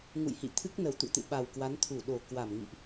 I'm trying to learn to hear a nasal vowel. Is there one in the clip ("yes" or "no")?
no